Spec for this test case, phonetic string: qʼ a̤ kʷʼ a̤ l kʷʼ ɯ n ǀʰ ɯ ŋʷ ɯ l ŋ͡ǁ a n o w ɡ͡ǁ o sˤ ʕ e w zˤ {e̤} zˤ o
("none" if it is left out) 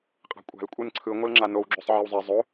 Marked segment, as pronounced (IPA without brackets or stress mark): e